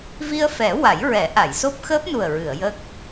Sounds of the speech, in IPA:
v i˧ ə̯ f ɛ˨˩˦ w a˨˩˦ j ɹ ɛ˨˩˦ ʔ a˨˩˨ j s o˦˥ p̚ x əː˦˥ p̚ n u˨˩ ə̯ ɹ ɨ˨˩˨ ə̯ j ə˦˥ k̚

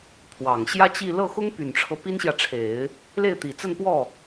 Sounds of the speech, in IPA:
pʰ w ɑ˨˩ ŋ ɕ j ä˥ t͡ɕ i˥˧ l ɤ˥˩ x ʊ˥ ŋ p y˨˩ n ʈ͡ʂʰ ɤ˦ p i˥ n ɕ j ä˨ ʈ͡ʂʰ e˨˩˦ ɪ̯ | l e˥˩ ɪ̯ t̪ i˨˩ t͡s ə˥˧ n p w ɔ˥˩

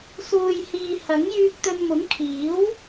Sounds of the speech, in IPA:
s uː˨ j h iː˨ h ɐ˨˥ ŋ j yː˧ k̚ t̪ ɵ˧ n m ʊ˨˥ ŋ kʰ iː˨˥ w

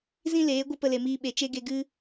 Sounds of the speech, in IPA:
z ĩ˦ l eː˨˦ ɡʷ ɨ˦ p ə˧ l e˨ m iː˧ ɓ e˨ t͡ʃ e˦ ɡ e˧ ɡ ɨ˦

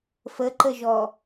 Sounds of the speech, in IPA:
f ə ǃ ə ʒ ɔ

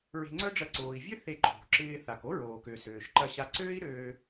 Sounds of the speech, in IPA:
ɹ e̤˧ ŋ͡ǀ œ˥ ɖ͡ʐ ɐ˧ ǀ oː˩ i̯ vʲ ø˥ θ e˧ ǃʰ o̤˩ ǁ ɪː˧ θ a˩ k o˥ ɹ oː˩ k ø˩ s øː˩ ʃ ǃ ɐ˧ ɕ a˧ ǀ øː˥ i̯ ɾ øː˧

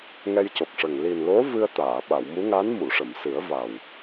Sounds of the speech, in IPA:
ŋ ɛ˧ j c o˨˩ k̚ ʂ ə˨˩ ŋ l i˨˩ n l o˧˥ v ɨ˧ ə̯ t̪ aː˨˩˨ ɓ a˨˩˨ w m u˧˥ ŋ a˧˥ n m u˨˩˨ ʂ ə˨˩˨ m s ɨ˨˩˦ ə̯ v a˨˩ w

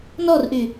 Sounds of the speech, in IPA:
n ɔ r ʔ y

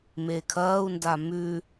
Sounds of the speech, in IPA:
m e kʰ ɐː u̯ n d a m ʉ

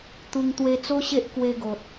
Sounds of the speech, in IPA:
t̪ u˧ ŋ t̪ w e˧ t͡s o˦ ɕ e˦ ʔ k w e˧ ɡ o˨ t̚

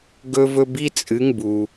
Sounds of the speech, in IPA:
ɡ ɵ˦ v ɵ˦ b i˦ t͡sʼ ɨ˨˦ ŋ b u˨

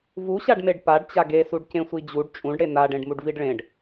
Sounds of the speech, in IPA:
v u ɕ a ɖ m e ɖ p a ɖ t͡ɕ a ɡ e s u ɖ c ẽ sʷ i d͡ʑ u ɖ t͡ʃʼ ũ ɖ ɽ e n a ɖ ẽ ɖ m u ɖ v i ɖ ɭ ẽ ɖ

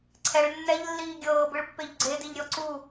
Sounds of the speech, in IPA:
ǀʰ ɛ ɭ nː ɛ ʎ lː iː ɡʲ ɤː b ɯ ɭ pː e ʎ ɡ͡ǀ e d i ʎ ɾʲ ɔ ǀ u

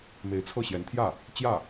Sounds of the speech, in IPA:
m e˧˥ ɪ̯ t͡sʰ ɤ˥˩ ɕ j ɛ˧˥ n t̪ʰ j ä˥˩ | t͡ɕ j ä˥˩

